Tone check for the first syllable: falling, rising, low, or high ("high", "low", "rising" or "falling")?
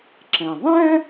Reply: low